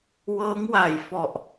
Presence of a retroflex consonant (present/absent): absent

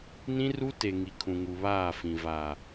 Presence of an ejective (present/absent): absent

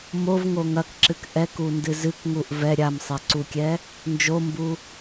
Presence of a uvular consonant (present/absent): absent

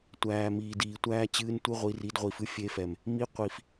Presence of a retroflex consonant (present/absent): absent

